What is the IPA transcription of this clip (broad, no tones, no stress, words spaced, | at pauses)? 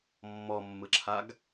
mːɔmːɯǁʰaɡ